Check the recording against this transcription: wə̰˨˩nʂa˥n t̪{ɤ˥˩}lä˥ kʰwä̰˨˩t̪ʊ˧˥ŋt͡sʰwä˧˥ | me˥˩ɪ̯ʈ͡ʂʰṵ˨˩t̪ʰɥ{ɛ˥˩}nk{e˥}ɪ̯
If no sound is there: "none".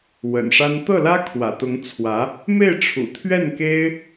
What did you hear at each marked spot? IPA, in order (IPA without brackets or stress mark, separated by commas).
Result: ɤ˥˩, ɛ˥˩, e˥